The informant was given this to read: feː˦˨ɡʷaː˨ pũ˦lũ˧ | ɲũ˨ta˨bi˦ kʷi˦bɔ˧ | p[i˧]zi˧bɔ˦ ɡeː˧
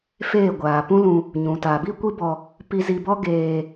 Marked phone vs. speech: correct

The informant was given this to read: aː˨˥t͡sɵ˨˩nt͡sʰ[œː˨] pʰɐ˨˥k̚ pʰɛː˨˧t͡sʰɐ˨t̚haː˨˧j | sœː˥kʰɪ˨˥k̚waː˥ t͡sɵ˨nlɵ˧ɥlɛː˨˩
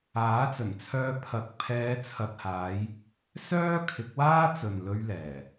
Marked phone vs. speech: incorrect: œː˧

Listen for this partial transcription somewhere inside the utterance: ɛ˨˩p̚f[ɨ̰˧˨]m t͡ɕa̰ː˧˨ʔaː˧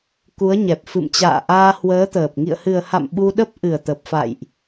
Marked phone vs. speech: correct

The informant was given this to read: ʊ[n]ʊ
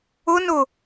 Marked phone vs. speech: correct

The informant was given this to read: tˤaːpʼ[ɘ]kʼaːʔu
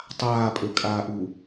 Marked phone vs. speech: incorrect: ø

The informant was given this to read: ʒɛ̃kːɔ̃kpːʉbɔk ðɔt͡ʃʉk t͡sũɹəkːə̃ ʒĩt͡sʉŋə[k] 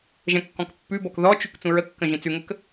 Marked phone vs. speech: correct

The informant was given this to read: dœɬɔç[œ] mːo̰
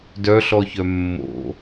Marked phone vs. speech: correct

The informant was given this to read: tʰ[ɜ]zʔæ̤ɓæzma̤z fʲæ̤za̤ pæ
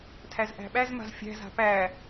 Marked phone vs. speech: incorrect: æ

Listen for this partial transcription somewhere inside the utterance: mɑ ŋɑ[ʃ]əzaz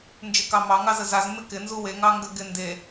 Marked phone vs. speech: incorrect: z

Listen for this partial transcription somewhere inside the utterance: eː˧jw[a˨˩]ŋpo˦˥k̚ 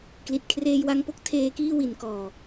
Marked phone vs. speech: incorrect: a˧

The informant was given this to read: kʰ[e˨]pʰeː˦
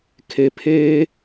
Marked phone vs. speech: correct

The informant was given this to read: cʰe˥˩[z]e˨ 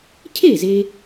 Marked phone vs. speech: correct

